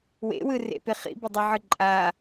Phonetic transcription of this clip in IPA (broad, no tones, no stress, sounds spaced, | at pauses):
w ḛ w ɯ r ḛ p e χ ḭ b e dˤ ʉ ʕ ɯ ǃʼ a